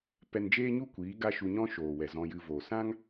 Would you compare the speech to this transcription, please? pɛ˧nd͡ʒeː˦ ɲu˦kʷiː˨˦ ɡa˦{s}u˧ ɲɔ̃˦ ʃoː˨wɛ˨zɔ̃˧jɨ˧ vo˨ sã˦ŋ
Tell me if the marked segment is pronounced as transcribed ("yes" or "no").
no